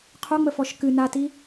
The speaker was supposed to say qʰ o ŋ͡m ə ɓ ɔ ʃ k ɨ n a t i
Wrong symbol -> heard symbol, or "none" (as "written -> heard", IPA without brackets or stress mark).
ɓ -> f